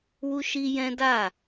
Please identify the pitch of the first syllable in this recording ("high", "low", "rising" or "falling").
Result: high